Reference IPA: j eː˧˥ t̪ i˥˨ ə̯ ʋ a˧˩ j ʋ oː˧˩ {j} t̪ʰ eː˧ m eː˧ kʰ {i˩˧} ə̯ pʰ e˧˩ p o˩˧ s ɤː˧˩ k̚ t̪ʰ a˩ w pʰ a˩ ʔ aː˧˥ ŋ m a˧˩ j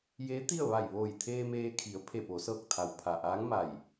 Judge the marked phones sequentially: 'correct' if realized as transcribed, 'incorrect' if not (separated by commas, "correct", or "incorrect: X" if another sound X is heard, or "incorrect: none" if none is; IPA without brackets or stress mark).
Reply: correct, correct